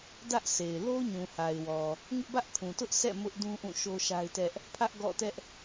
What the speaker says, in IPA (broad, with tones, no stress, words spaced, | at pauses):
dä˦ʔse˨ɪ̯ lo˦ɲũ˨ha˨ɪ̯wɔ˨ | ŋɪ˦ʔbä˦ʔkʰũ˨tʊ˦ʔ sʰɛ̰˦˨ mʊ˦ʔ dũ˦ʔũ˦˨ ʃo˦ʃa˦ɪ̯tɛ˦ʔ | pʰä˦ʔɡɔ̰˦˨tɛ˦ʔ